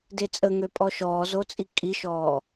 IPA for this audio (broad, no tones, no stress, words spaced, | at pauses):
det͡sʼəŋøpʼɔ ʃɔːzot͡sʼi kʼiʃɔː